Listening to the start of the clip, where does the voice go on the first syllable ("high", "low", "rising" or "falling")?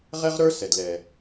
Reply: high